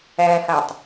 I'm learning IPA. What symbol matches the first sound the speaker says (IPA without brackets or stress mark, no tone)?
æ